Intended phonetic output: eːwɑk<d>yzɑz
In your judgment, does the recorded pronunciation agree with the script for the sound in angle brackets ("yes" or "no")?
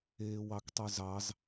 no